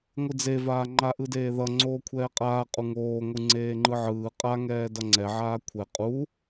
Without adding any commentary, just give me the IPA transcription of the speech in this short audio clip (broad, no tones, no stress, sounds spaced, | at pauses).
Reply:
ŋʷ ɯ d͡z e v aː ŋ͡ǃ a ʔ ɯ d eː ð ʌ ŋ͡ǀ oː kʷʰ ɛː qʼ aː qʼ u ŋ oː ŋʷ ɯ ŋ͡ǀ eː ŋ͡ǃ ɯ ʕ ɯː qʼ a ŋ ɛː d ʌ ŋ͡ǀ ɛ ʕ aː kʷʰ ɛ qʼ u